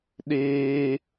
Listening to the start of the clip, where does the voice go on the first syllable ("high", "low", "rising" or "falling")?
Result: high